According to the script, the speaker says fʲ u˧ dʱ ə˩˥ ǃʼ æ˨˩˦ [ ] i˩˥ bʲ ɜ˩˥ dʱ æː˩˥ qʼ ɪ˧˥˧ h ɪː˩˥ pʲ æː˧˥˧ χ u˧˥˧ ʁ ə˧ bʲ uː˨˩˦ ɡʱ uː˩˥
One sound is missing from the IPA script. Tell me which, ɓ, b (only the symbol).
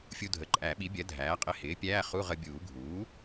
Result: ɓ